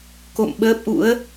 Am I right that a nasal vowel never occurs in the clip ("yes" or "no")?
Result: yes